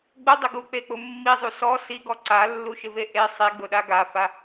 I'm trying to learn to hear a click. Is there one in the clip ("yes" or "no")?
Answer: yes